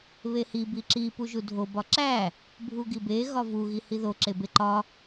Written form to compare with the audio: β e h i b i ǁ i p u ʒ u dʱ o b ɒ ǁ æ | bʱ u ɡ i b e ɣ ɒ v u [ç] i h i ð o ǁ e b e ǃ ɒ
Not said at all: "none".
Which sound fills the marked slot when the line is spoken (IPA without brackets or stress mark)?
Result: ɣ